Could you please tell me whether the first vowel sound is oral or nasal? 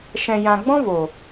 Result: nasal